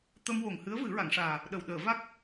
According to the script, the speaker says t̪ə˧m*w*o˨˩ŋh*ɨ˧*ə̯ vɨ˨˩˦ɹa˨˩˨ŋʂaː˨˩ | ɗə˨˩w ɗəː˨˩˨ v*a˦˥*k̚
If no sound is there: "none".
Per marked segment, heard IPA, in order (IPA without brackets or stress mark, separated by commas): w, ɨ˧˥, a˦˥